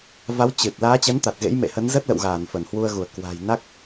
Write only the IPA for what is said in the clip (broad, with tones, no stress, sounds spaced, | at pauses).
v a˨˦ w t͡ɕ ɨ˨˩ t̚ l aː˨˦ t͡ɕ ə˨˦ n t̪ a˨˩ t̚ ɣ ḛ˧˥ j m ḛ˧˨ h ə˨˦ n z ə˦˥ t̚ l ə̰˧˨ w ɣ aː˧˩ n f ə˧˩ n h w u˧ ə̯ ɣ u˧˩ ə̯ k w a̤˨˩ j n a˦˥ k̚